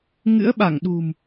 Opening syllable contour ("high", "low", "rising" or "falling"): rising